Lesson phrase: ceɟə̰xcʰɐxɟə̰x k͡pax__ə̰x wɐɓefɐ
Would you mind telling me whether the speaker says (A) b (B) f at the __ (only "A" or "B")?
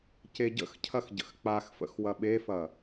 B